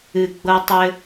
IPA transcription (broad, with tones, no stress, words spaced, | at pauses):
ɨ˨ɡ͡bɤ˧tˤɘ˧